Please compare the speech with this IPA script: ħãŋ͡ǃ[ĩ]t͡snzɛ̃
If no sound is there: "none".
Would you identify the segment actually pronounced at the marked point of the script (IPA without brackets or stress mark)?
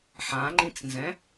ĩ